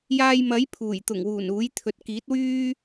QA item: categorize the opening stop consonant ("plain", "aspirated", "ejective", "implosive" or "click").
aspirated